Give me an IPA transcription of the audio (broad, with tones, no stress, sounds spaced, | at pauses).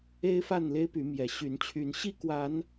e˦ ɪ̯ f a˥˨ n l e˦ ɪ̯ p y˨˦ m j ɛ˨˦ ɕ y˨˦ n t͡ɕʰ y˨˦ n ɕ i˥˨ k w a˨˦ n